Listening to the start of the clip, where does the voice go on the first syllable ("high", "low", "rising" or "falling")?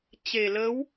low